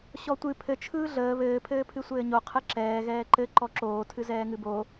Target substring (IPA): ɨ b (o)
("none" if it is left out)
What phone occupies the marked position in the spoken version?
o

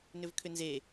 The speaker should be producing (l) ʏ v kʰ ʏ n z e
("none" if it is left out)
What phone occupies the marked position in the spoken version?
n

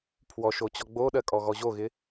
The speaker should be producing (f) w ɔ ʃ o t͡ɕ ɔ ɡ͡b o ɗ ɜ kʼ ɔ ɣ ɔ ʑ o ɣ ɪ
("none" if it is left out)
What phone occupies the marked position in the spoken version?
pʰ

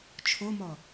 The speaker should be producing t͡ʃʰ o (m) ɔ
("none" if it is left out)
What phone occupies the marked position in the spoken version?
m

